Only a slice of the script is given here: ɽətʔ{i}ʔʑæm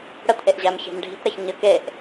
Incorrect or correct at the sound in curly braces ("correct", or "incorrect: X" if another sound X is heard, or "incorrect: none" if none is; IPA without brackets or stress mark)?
incorrect: e